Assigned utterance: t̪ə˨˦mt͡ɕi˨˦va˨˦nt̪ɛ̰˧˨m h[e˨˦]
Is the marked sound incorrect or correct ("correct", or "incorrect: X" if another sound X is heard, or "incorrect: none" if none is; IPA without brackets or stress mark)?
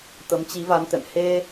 incorrect: e˧